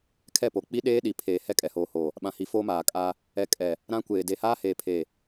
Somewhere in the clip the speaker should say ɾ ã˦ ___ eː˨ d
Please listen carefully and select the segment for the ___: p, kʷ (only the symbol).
kʷ